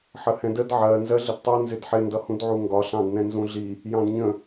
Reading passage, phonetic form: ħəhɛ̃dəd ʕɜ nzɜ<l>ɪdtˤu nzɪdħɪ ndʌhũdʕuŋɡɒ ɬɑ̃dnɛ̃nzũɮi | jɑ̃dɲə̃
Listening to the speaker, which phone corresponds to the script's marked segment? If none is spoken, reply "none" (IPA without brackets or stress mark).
ɮ